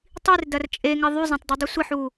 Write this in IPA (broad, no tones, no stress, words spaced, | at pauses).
tˤirdɐr t͡ʃʼeŋɪ ðˤyzˤɐ̃tˤdidˤu sʷɪħu